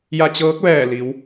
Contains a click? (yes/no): no